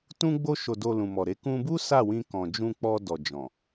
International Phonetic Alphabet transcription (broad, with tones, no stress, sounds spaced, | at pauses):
t ũ˧ ɡ͡b o˧ ʃ o˨ d o˨ l ũ˨ m ɔ˨ ɾ e˨˦ k ũ˧ b u˦ s a˦˨ w ĩ˧ k ɔ̃˨ d͡ʒ ũ˧ k͡p ɔ˧ d ɔ˨ d͡ʒ ɔ̃˨